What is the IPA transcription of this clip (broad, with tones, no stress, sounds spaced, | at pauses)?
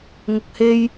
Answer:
ŋ ʊ˨ k̚ h e˧ j